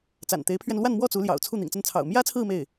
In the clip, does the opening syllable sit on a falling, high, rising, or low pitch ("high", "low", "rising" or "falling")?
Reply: low